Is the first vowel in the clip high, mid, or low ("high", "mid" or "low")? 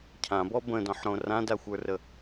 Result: low